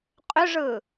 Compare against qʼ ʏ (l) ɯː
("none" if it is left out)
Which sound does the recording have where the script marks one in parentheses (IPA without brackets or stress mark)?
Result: ʐ